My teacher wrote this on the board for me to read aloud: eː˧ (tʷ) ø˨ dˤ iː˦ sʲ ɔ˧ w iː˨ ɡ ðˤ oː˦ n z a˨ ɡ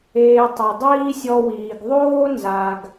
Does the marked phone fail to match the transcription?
yes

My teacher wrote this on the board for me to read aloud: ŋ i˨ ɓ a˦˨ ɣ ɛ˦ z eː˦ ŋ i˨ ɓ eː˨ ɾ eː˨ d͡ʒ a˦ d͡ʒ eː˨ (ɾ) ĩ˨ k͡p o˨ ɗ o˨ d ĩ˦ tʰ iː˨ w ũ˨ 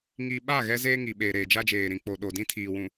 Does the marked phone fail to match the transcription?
no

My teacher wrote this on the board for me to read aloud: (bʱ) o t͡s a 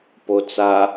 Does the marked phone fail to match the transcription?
yes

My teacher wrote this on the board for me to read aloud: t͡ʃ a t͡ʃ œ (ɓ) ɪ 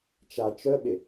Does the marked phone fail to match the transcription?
no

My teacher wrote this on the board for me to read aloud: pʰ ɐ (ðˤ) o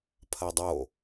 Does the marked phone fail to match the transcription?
yes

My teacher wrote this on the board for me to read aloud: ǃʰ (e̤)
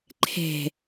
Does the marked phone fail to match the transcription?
yes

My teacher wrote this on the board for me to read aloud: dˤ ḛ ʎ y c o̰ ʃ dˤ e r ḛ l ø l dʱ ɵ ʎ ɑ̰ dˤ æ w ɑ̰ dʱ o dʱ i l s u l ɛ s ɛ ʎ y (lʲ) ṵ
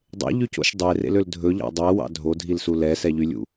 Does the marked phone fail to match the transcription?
no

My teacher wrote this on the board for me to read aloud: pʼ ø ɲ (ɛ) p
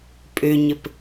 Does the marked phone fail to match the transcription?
yes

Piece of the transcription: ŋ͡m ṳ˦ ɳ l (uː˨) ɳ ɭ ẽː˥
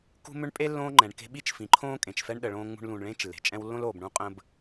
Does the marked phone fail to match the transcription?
yes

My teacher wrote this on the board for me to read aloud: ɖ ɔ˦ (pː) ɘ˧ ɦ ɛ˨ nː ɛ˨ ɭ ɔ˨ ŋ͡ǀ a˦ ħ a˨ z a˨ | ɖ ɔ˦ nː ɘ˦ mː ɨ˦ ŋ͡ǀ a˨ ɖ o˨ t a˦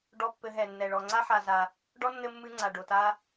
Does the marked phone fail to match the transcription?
no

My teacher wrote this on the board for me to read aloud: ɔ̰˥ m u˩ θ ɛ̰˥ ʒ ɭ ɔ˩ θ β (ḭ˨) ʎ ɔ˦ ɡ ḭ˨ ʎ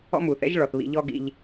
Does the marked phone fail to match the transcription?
no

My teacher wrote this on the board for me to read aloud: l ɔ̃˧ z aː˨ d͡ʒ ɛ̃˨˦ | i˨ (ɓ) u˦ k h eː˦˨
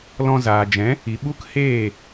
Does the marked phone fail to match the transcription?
no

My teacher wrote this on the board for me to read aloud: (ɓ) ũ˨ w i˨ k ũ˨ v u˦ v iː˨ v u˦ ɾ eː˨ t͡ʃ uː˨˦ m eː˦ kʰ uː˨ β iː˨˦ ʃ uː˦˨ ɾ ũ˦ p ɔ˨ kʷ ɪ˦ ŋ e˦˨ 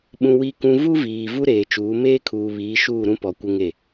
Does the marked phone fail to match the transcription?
no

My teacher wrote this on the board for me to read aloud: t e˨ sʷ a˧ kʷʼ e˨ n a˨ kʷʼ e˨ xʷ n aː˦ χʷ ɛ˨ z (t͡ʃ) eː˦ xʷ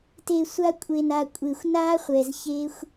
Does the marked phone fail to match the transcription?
yes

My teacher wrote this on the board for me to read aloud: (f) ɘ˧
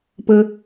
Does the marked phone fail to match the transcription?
yes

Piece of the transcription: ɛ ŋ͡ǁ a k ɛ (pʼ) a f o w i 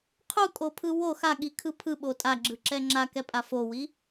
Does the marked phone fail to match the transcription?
no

